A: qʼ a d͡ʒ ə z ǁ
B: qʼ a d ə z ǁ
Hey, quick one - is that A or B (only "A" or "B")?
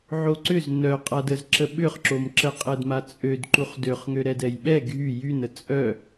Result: B